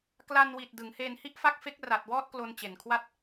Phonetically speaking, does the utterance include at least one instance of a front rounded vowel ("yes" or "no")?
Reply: no